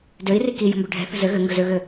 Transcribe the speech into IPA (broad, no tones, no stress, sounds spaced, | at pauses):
d ø i̯ r i k i j ə̤ m b ø ɖʱ ɛ̤ θ ə̤ z ɘ ɣ ɘ ŋ ɡ ə z ø ɣ ɘ